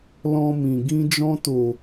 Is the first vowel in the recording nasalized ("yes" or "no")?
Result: yes